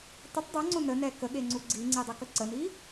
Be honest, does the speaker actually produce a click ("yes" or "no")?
yes